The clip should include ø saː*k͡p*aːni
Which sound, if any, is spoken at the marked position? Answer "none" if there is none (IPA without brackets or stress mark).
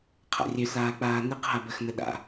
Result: k͡p